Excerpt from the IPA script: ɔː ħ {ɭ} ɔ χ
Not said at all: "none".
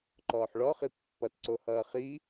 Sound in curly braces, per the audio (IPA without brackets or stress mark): ɭ